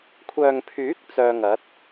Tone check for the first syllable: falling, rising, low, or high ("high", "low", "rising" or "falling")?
low